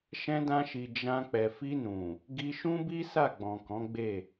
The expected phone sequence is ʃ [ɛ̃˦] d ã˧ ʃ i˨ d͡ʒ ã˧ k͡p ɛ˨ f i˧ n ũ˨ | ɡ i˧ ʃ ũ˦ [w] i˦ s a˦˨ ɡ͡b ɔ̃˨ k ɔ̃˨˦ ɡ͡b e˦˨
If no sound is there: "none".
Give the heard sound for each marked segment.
ɛ̃˧, b

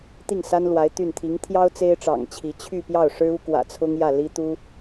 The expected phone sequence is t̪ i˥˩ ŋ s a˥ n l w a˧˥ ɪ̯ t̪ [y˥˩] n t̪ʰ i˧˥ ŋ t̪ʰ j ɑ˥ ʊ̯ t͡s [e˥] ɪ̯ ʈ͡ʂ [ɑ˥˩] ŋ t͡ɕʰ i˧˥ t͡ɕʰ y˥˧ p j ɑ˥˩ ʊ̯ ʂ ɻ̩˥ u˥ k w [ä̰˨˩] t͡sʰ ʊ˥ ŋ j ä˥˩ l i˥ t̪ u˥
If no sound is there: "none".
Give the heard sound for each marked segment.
y˥˩, e˥, ɑ̰˨˩, ä̰˨˩

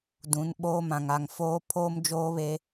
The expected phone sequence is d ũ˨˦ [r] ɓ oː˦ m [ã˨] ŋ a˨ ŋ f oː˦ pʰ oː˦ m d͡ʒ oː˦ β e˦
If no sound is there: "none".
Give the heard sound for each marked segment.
n, ã˨

